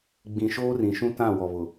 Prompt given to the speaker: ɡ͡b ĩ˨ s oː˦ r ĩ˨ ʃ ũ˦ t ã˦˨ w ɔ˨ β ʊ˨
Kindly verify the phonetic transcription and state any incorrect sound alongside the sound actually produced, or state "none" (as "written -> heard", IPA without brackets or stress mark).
s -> ʃ